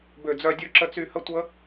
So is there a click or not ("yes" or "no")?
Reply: yes